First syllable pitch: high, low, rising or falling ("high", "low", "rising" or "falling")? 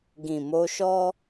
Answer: low